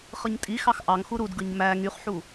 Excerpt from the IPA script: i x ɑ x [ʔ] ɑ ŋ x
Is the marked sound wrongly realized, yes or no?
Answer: no